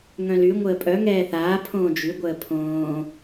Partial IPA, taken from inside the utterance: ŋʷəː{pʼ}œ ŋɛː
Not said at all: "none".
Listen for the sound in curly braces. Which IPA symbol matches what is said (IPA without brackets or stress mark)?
pʼ